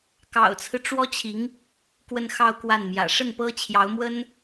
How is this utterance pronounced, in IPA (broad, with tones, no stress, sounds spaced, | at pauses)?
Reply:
k ɑ̰˨˩ ʊ̯ t͡sʰ ɹ̩˦ ʈ͡ʂ w ɔ˥ t͡ɕʰ i˧˥ ŋ | k w ə˥˧ n x ɑ˥˧ ʊ̯ k w a˥˩ n m j ä̰˨˩ ʂ ə˥˩ n p ɤ˥ t͡ɕʰ j ɑ˧˥ ʊ̯ m w ə˥ n